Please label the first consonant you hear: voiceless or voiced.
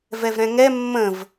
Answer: voiced